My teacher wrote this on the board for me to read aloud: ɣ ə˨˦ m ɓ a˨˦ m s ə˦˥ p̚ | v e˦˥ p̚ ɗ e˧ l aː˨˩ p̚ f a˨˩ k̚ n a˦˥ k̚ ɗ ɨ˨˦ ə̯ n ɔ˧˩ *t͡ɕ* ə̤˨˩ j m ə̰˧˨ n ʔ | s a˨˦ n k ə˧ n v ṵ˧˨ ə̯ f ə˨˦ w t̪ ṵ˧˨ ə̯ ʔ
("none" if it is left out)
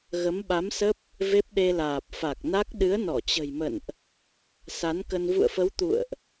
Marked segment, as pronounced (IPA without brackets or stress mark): t͡ɕ